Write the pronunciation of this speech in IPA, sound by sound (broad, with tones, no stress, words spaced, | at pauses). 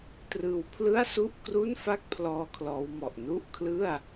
trɯː˧wpʰlɯ˥˩a̯su˥˩ʔkru˥˩n fa˥˩k̚pʰlɔː˧ kʰlɔː˦˥wmɔ˨˩ʔ nu˥˩ʔkʰlɯ˥˩a̯